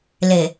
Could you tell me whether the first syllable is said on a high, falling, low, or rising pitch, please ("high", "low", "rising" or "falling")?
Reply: low